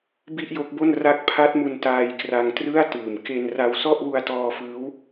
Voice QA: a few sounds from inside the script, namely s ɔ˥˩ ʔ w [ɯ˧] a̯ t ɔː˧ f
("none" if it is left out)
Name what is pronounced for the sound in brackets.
u˧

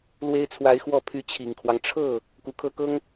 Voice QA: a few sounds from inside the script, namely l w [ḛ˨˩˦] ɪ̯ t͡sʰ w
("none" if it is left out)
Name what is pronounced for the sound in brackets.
e˥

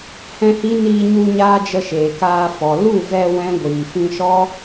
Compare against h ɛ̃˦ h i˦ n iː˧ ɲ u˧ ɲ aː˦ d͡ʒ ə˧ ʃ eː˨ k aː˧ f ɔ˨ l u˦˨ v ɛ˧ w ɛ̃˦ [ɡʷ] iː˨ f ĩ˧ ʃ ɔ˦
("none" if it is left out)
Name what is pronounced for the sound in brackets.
ɡʷ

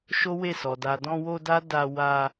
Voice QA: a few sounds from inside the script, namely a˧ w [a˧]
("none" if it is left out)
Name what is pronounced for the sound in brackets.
a˧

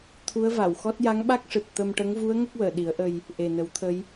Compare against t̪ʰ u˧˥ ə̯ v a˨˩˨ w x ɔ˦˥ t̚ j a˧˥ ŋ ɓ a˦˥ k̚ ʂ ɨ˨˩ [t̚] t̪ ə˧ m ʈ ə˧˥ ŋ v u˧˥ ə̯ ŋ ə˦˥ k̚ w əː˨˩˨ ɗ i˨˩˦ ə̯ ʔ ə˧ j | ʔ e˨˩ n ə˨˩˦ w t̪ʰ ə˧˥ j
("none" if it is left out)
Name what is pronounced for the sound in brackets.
t̚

